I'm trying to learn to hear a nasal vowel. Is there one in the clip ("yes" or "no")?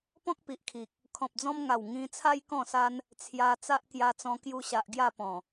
yes